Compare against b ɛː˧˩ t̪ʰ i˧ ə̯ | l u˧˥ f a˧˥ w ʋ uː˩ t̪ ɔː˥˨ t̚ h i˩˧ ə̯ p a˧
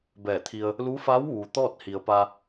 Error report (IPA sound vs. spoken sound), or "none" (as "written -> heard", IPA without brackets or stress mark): none